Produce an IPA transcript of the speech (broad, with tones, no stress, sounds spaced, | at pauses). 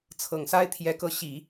t͡sʰ ɤ˨˩ ŋ s a˥ ɪ̯ t̪ʰ j ɛ˧˥ k ɤ˧˥ ɕ i˨˩˦